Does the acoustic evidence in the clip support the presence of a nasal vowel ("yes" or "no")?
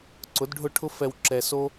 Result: no